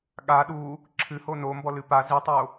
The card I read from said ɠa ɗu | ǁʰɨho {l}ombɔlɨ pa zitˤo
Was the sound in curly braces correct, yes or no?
no